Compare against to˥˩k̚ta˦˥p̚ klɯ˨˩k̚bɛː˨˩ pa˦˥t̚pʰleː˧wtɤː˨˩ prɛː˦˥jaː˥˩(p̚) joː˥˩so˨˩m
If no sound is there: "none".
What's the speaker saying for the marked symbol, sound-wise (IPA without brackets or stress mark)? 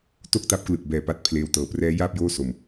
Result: p̚